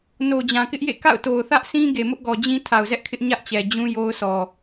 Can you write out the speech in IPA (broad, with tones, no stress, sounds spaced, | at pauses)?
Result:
n o˨ d͡ʑ ã˨ k ɪ˦ ʔ j ḛ˦˨ k a̰˦˨ ʊ̯ t o˨ ʊ̯ θ ä˦ ʔ sʰ ĩ˦ ɡ e˨ m ʊ˦ ʔ ɡ ɔ˨ d͡ʑ ĩ˦ tʰ a˨ ʊ̯ z ɛ˦ ʔ kʰ ɪ˦ ʔ ɲ ä˦ ʔ t͡ɕ ɛ˨ d͡ʑ ũ˦ j o˦ ʊ̯ s ɔ˨